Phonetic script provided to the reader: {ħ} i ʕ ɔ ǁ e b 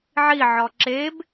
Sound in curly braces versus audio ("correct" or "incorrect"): incorrect